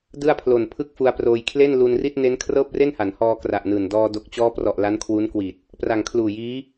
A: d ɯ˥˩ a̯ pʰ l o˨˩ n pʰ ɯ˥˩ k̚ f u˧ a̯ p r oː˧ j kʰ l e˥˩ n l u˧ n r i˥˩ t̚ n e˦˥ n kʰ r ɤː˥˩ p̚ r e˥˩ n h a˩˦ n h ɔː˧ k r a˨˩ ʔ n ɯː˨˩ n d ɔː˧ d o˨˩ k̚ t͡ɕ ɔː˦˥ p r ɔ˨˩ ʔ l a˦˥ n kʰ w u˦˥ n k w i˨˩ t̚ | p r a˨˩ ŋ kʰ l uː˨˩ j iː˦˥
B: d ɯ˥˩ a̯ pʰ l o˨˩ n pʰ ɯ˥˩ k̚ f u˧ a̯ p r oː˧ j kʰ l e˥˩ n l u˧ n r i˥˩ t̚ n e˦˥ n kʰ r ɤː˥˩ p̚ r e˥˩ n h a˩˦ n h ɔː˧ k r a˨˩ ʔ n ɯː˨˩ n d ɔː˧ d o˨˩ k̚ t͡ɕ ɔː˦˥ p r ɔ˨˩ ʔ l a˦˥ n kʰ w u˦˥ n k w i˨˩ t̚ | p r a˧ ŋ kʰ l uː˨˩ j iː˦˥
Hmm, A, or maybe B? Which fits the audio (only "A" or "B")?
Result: A